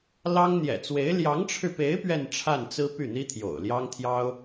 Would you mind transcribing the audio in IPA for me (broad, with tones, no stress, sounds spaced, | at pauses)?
l ɑ˥ ŋ n̪ j ɛ̰˨˩ t͡s w e˧˥ ɪ̯ l j ɑ˧˥ ŋ ʈ͡ʂʰ ɻ̩˧ p e˧˥ ɪ̯ p ɥ ɛ˥˧ n ʈ͡ʂʰ a˥˩ n t͡s ɹ̩˥ p y˥˩ n̪ i˥ t̪ʰ j o̰˨˩ ʊ̯ l j ɑ˥ ŋ t̪ʰ j ɑ˥ ʊ̯